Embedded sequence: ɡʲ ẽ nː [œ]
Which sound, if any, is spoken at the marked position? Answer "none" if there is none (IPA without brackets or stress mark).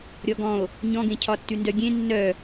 œ